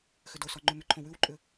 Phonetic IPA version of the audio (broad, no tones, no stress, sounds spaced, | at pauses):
x ʏ d o s ɔ ŋ͡ǃ ʉ m ʏ ǃʰ õ w ʉ w ǃʼ ʏ